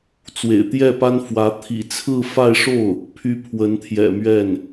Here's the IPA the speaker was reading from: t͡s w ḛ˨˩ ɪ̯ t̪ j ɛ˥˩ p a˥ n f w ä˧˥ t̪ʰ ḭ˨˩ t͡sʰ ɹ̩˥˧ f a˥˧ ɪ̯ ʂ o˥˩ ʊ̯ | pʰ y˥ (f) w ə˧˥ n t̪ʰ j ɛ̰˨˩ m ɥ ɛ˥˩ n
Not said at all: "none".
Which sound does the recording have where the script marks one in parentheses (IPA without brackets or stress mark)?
pʰ